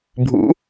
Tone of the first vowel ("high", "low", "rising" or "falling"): rising